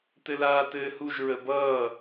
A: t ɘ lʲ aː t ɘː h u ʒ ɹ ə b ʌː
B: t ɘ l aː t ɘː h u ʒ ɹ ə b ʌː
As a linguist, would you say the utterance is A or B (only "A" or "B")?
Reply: B